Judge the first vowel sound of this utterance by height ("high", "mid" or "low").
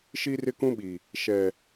high